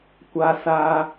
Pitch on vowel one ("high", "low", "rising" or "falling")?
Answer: high